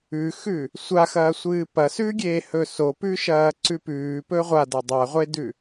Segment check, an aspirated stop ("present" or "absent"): absent